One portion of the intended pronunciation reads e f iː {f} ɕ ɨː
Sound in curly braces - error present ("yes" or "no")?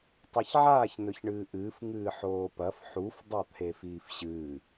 no